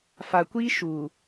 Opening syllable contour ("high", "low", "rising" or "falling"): low